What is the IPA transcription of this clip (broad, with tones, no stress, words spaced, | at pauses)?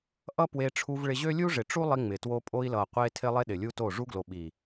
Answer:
ʔʌ˦pwe˧ʈ͡ʂʰu˧v ɭɪ˧ʑø˦ lʲu˦ʐɪ˨ ʈ͡ʂu˦lˠi˧ŋ͡mɪ˨two˧ pʼo˧i̯lʌ˨qʷe˧tʰɪ˧ lˠe˦ɗɪ˨lʲu˦to˦˨ ʐu˦ɡlo˨ ɓi˨